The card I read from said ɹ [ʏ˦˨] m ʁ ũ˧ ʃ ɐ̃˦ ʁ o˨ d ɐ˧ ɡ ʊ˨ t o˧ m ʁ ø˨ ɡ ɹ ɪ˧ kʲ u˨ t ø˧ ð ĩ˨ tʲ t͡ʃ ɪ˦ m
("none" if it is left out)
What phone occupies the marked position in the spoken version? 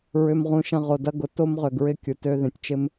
ʏ˧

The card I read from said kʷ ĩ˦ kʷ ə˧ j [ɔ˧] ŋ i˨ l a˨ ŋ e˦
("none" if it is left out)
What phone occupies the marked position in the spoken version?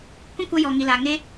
ɔ˨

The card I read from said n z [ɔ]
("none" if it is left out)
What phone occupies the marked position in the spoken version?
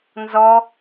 ɔ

